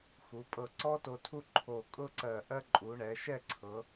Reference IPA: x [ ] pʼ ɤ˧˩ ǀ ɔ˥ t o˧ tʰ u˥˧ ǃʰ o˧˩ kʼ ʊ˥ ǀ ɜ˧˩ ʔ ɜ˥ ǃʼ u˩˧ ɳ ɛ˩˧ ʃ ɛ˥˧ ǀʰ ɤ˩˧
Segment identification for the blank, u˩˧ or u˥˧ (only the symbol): u˩˧